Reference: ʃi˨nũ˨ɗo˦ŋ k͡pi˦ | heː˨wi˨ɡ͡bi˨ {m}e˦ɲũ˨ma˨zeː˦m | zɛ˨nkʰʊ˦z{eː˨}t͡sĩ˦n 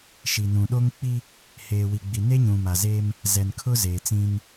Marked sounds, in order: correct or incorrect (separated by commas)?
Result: incorrect, correct